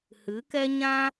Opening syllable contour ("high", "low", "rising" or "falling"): rising